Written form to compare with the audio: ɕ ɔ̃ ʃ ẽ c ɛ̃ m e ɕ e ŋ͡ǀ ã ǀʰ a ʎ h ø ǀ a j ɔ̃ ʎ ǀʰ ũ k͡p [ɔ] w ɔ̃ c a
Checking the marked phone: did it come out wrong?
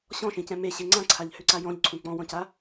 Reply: yes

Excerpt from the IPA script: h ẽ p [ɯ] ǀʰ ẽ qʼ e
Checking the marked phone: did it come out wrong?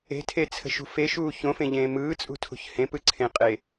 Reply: no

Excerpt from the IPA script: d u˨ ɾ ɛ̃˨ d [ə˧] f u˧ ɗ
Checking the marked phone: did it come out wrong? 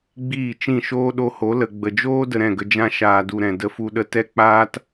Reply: no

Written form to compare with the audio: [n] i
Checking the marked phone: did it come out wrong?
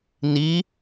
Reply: no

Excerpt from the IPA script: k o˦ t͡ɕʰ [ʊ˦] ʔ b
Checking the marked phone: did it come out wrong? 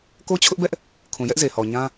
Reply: no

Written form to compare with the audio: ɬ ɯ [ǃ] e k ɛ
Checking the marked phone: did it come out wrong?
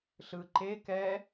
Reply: no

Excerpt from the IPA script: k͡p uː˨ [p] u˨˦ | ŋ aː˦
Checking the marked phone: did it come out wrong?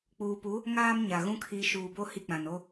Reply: no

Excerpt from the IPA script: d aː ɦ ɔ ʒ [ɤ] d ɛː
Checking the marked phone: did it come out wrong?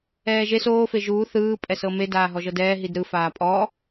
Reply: no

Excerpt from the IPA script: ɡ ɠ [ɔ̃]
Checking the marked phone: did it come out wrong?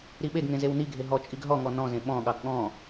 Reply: no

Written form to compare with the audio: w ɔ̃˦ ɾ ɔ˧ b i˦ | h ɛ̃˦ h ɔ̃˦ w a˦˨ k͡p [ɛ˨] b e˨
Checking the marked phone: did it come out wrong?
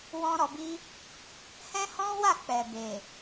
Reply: no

